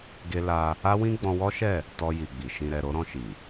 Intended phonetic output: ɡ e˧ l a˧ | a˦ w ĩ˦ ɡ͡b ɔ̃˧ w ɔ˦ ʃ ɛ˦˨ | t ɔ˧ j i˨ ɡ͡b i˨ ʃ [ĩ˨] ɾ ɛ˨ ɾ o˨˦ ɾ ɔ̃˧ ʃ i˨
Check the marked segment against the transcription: correct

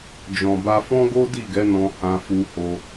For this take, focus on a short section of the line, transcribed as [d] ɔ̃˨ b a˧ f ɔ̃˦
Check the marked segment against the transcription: incorrect: d͡ʒ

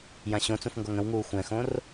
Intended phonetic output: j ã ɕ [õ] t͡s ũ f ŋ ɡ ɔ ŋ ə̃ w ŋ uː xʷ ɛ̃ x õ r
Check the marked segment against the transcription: correct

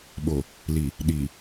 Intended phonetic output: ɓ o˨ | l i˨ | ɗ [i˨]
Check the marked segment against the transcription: correct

